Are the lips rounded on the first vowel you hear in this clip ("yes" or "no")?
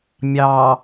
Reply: no